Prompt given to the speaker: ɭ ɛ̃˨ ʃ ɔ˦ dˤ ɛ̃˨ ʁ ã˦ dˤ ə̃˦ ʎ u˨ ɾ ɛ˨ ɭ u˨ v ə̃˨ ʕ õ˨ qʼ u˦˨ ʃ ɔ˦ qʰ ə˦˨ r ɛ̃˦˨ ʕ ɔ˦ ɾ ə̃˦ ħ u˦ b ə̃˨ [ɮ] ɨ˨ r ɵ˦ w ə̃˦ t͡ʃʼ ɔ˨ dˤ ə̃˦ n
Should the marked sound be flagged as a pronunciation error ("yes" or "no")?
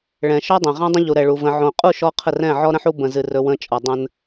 yes